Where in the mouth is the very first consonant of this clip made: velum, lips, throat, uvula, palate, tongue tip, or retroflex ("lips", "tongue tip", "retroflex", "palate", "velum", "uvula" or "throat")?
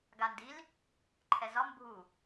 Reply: velum